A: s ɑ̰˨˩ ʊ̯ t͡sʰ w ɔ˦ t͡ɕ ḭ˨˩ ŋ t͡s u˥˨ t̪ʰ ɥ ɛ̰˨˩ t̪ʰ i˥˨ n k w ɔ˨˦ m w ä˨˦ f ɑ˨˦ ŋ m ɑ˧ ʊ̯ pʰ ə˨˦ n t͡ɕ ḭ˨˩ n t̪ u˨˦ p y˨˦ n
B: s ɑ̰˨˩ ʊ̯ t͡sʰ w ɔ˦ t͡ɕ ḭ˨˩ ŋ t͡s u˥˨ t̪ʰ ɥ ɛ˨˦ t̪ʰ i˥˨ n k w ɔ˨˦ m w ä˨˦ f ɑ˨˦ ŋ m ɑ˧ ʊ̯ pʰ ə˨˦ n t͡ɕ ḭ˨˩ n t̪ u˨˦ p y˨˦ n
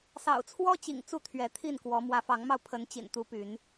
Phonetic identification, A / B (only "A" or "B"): B